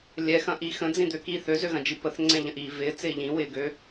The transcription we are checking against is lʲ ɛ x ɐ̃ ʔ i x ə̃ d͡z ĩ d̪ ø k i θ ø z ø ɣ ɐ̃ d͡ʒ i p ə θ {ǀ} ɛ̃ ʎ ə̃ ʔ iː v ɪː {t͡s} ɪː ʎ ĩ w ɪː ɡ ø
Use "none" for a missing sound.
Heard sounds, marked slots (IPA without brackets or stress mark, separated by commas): ŋ͡ǀ, t͡s